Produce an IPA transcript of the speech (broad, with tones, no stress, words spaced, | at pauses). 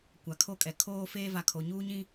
kʷa˨kʰo˦kʼɛ˨ kʰoː˦feː˦va˨kʰo˨ ɲuː˦ɲĩ˦